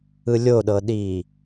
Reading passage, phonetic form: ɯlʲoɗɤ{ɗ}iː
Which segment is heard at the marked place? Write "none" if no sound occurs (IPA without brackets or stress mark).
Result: ɗ